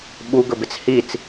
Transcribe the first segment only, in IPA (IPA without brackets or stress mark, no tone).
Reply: ɓ